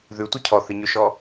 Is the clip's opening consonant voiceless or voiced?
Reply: voiced